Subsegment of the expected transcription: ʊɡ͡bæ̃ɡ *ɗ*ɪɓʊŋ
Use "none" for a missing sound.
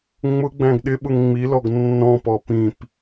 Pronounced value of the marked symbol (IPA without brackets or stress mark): ɗ